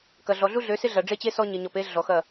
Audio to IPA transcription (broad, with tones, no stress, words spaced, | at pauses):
kɐ˨ɮɔ˨ ɮu˦ɮø˨˦sɪ˦ɮɐ˨ ɖ͡ʐe˦t͡ɕe˦ sɔ˦ɲɪ˨ɲɔ˨p e˦ ɮɔ˨xɐ˦˨